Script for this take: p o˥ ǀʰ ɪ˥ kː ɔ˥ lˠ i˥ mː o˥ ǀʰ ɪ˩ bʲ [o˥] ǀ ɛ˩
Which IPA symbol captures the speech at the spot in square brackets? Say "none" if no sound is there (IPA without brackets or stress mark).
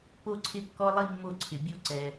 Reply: o˥